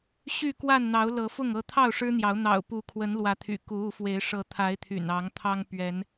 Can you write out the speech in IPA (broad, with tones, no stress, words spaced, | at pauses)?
ɕy˥˨kwa˥˨nn̪ɑ˨˦ʊ̯ lɤ˨˦fʊ˥˨ŋ ɤ˥˨ t̪ʰɑ˥˨ʊ̯ʂɻ̩˦n̪jɑ˨˦ʊ̯ n̪ɑ̰˨˩ʊ̯pu˨˦kʰwə˨˦n lwä˨˦t̪ʰy̰˨˩ ku˨˦u˨˦fwe˨˦ɪ̯ ʂɤ˨˦t̪ʰa˨˦ɪ̯ t̪ʰy̰˨˩nɑ˨˦ŋt̪ʰɑ˦ŋ pɥɛ˨˦n